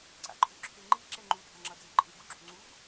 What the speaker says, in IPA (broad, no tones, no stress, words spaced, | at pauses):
ǀa̰ǃʼuǁʰeŋ͡ǃi ǁɛŋ͡ǃu dʱaŋ͡ǁʌd͡zeǃʼɯ ɡuɡ͡ǁuŋ͡ǀuɡ